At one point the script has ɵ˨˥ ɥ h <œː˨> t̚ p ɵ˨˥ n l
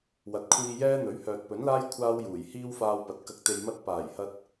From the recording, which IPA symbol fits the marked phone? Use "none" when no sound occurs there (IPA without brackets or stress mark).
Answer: œː˨